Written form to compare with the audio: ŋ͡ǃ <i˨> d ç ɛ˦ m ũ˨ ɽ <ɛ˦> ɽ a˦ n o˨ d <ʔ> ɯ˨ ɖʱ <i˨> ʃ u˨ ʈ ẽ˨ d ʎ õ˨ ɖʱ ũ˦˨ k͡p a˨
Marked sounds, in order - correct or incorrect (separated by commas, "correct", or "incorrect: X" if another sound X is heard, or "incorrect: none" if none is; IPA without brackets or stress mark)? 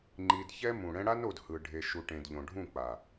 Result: correct, incorrect: ɛ̃˦, incorrect: h, incorrect: e˨